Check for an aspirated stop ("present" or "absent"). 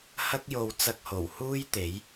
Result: absent